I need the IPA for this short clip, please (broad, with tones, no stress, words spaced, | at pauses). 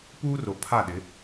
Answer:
puː˦ro˨pʰa˦˨ɗɪ˨˦